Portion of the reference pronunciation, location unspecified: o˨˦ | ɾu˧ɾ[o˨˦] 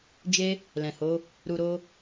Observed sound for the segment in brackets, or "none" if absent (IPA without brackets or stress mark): o˦